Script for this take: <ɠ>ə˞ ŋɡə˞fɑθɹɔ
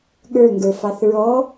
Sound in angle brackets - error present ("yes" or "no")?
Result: no